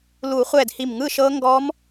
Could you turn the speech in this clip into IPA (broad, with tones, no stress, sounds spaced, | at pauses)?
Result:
l u˨˩˦ χʷ ɛ˧˩ d h i˧˩ m ŋ ɯ˥˨ ʃ ɤ˦˥ ŋ ɡ ɔ˦˥ m